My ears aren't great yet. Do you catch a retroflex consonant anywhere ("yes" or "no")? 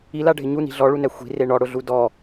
yes